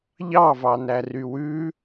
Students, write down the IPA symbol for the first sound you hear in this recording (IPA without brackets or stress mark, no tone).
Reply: ʎ